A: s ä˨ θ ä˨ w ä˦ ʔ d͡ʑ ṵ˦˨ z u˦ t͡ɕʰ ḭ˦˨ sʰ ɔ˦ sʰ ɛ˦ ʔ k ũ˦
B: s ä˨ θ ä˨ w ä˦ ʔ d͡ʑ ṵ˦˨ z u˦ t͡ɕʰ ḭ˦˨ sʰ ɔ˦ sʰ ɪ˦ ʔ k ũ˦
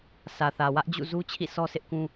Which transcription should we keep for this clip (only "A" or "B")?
B